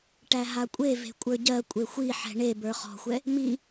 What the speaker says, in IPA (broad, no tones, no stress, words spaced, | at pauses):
ʈæɦakʷʼeve̤ kʷʼə˞ɟɜ kʷʼexʷiħɛ̤ ɳe bə˞χɔ̤xʷɛ | mi